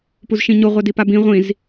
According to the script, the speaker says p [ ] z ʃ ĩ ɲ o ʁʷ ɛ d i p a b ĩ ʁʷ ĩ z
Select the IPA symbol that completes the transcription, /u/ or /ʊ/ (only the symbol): u